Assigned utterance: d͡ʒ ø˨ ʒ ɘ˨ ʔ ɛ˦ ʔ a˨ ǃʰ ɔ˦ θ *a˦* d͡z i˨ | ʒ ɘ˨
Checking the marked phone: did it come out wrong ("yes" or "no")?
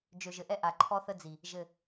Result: yes